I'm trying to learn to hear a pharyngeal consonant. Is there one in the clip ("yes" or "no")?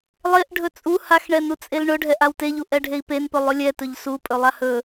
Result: no